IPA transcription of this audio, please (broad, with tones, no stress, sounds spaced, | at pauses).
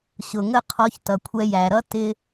ɕ ʊ˨ ŋ ə˦˨ qʰ ɔ˧ ç t ʌ˨ kʷʰ ɛ˧ j æ˨ ɾ ʌ˦ t ɪ˧